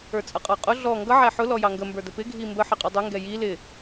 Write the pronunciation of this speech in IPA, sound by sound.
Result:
ə˞ t͡sʼ ʌ qʼ ɑ qʼ ʊ ɮ ɔ ŋ ɡ ʌ ʕ æ ħ ʊ l ɔ j ɑ ŋ ɡ ə m b ə˞ d ə p ɪ ɡʱ i m b ə ħ ɪ qʼ ʌ dˤ ʊ ŋ ɡ ɛ j i l ɪ

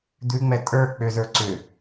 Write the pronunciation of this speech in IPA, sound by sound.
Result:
d̪ ʉ ŋ͡m ɛ tʼ ə˞ k͡p ʏ z ə˞ ǀ ʏ

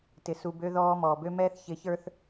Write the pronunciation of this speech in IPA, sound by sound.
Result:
t ɪ˨ s u˨ b ø˨ ð ɔː˨ m ɔː˨ b ø˦ m ɛː˦ θ ç ɪ˨˦ ç ə˞˦ θ

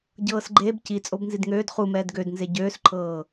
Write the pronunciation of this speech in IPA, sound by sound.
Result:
ɟ ɤː s ɡ͡ǃ eː b c i t͡sʼ o b n z i d ŋ øː d χ u m ɛː d ɡ ø d n z e ɟ øː s ǃʰ ɤː

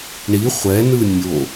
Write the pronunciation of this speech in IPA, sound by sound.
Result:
ɳ i χʷ ɛ n ɯ nʲ o

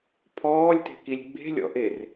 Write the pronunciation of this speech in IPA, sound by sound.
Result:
pʰ ɔː lʲ t e̤ k i lʲ ɡ͡b e̤ lʲ ɔ̰ ʔ e r

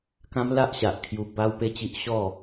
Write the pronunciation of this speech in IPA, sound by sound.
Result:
k ã˦ m l a˦ ʔ ɕ a˨ ʔ kʰ j u˧ b a˦ w p e˦ t͡ɕ i˦ ʔ ɕ ɔ˥˧

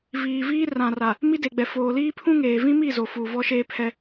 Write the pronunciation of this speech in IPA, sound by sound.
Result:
v iː˨ v iː˦ r ã˨ r a˨ | m i˦ d e˨ ɡ͡b ɛ˨ f oː˨ l iː˦ pʰ ũ˦ ŋ eː˨ v ĩ˦ m i˦˨ z o˨ f uː˨ v ɔ˦ ʃ eː˦ pʰ ɛ˦

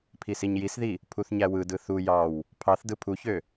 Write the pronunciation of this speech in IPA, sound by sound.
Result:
pʰ i s i ɲ j i s ð i | pʰ u θ ɲ æ w ɯ d ɯ θ u j ɑ w | pʰ ɑ θ d ɯ pʰ u ç ø

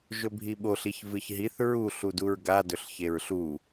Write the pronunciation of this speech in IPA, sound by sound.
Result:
ʒ ɵ bʱ i ɓ o ɬ i ç v ɨ ç ɦ i θ ɹ u ɬ u d u ɹ ɡ a d ɵ ɬ ç e ɹ ɬ u

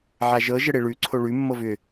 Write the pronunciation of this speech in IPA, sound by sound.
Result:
ʕ a ʒ ɤ ʒ ə ɽ e ɭ ʉ ǀʰ o ɭ ʉ mː ɤ v ʏ

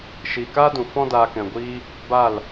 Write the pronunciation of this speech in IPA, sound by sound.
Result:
ʃ iː˨ k aː˦ d ũ˨ f ɔ̃˦ d aː˧ k ɛ̃˨ ɡʷ iː˦ | b a˦˨ l

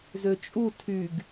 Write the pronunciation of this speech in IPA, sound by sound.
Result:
z ø t͡ʃʼ u tʰ y ɡ

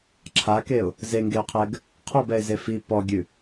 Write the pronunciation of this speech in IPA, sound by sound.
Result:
ǁʰ a k e ʊ̯ | z e ŋ ɡ e ʊ̯ qʰ ɛ ɡ | qʰ ɔ b ɛ ɪ̯ z e f i p ɔ ɡʲ ʉ

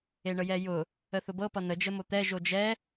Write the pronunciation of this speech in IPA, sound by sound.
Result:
e ɳ ə j ɛ j ʊ | ə θ ʊ b ɤ p ʌ n ə d͡ʒ ə m o t̪ ɛ ʒ o d͡ʒ ɛ

